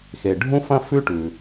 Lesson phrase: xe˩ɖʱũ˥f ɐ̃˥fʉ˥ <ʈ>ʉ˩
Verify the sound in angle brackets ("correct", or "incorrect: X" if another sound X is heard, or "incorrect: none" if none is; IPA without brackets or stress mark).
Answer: correct